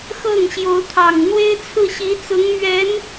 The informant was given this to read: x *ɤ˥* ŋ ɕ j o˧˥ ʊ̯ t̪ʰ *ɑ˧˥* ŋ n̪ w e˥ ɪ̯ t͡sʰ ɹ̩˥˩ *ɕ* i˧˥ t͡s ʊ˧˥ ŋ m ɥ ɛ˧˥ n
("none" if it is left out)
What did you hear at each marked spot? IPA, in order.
ɤ˥˩, ɑ˨˩, ɕ

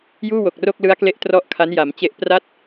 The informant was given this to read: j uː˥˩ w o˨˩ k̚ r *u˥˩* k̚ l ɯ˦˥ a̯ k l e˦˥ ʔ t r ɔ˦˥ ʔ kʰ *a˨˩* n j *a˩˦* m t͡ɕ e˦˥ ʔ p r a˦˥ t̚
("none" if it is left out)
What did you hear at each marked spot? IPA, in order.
o˥˩, a˦˥, a˩˦

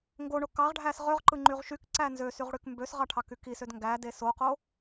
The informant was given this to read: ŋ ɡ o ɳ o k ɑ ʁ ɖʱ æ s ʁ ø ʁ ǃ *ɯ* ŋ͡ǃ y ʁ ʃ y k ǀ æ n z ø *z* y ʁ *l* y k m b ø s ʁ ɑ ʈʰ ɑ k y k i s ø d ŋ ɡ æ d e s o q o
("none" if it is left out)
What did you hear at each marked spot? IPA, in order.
ɯ, s, ɽ

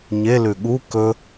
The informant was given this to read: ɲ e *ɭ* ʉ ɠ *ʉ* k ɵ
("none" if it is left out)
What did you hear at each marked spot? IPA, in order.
l, u

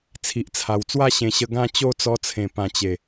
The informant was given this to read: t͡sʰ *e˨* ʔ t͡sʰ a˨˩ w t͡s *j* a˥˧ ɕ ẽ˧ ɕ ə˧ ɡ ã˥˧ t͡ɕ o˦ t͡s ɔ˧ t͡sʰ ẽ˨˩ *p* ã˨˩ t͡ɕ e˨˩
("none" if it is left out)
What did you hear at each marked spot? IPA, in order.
i˨, w, p

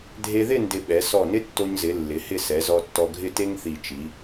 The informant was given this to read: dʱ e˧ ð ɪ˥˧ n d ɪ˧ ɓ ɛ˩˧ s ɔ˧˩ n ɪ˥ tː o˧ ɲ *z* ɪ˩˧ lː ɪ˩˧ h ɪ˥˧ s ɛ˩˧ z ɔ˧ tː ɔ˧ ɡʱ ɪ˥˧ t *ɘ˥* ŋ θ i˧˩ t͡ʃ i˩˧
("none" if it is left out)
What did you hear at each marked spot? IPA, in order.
z, e˥

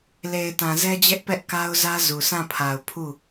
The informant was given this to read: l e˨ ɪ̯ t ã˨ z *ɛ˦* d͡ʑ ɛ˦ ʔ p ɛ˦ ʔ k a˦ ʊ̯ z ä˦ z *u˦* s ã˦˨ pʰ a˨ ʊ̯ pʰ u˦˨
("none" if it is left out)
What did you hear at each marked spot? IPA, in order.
ɛ˦, u˨

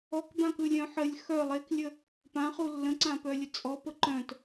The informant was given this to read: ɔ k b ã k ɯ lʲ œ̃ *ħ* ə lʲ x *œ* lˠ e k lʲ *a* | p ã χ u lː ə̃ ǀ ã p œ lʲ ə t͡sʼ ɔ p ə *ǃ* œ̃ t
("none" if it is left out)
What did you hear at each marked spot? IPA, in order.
ħ, œ, ə, ǃ

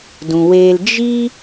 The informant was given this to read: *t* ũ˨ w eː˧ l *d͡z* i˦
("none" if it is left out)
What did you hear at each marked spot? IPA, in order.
d, d͡ʒ

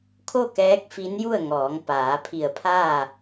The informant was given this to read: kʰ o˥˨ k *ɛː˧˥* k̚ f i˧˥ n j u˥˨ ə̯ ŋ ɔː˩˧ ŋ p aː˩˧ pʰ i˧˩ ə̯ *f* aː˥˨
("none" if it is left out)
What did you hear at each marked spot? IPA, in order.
ɛː˧˥, pʰ

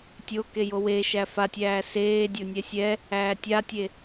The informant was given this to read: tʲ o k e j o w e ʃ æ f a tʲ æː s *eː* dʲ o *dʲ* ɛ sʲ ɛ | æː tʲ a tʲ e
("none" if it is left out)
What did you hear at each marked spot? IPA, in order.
eː, nʲ

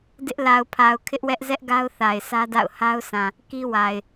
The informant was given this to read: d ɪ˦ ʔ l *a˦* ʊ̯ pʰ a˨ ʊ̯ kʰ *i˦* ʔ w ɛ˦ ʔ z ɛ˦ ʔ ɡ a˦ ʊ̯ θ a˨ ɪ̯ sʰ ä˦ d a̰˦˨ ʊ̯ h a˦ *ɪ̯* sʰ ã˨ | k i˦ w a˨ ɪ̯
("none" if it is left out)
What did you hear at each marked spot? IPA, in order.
a˨, ɪ˦, ʊ̯

